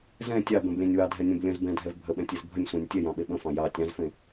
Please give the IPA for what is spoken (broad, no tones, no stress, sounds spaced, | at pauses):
z ɛ̃ tʲ ɑ b ɛ̃ b lʲ ɛ̃ nʲ w ɑ dʱ ɛ nʲ ɛ̃ b lʲ ə̃ z b ɛ̃ dʱ ɛ v bʱ ə ɓ ɛ̃ tʲ e z bʱ ə nʲ sʷ ɛ̃ nʲ tʲ ɛ j ɑ̃ ɓ e ɓ ə̃ f ɑ̃ j ɑ tʲ ɑ̃ z f ẽ